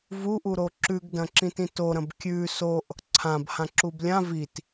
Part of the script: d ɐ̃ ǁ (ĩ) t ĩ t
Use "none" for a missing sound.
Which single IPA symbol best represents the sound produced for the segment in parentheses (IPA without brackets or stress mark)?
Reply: ĩ